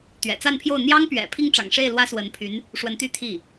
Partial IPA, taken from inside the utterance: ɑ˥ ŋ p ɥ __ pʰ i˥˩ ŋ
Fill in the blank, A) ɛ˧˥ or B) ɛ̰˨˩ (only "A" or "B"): B